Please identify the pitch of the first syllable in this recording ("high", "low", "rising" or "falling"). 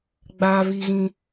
high